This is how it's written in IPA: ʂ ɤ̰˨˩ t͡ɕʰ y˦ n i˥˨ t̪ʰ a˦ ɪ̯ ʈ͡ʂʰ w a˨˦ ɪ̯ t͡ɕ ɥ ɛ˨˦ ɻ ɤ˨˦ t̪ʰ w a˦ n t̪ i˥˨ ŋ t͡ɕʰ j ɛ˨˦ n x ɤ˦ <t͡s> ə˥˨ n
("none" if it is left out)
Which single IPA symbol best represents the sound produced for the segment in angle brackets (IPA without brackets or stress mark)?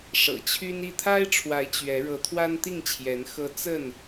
t͡s